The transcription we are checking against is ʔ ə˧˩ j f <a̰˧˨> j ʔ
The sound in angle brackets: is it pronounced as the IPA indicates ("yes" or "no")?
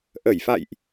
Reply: yes